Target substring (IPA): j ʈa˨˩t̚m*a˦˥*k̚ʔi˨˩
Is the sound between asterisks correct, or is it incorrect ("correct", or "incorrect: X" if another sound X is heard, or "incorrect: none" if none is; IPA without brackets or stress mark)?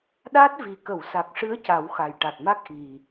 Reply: correct